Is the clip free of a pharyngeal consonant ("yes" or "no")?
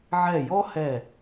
no